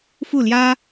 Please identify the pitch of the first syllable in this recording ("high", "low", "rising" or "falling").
falling